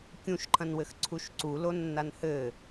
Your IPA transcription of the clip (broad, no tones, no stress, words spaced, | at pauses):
kʲũʃǃʰɐ̃nwɘx ǀʰuʃǀulo nːanhɘ